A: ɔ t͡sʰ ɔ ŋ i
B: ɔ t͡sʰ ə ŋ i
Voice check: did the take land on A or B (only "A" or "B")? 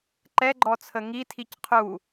B